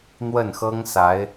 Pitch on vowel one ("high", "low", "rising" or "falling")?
falling